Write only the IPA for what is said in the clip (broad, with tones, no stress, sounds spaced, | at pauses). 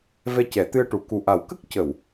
v ɛ˧ c ɛ˨˩˦ t̪ ɨ˧ ə̯ ʈ u˨˩˦ k u˨˩ ʔ a˨˩˦ w k ə˦˥ k̚ c ə˨˩˨ w